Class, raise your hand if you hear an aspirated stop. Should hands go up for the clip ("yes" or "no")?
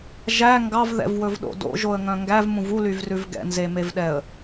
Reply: no